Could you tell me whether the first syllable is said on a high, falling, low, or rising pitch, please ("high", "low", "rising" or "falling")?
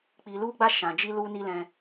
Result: low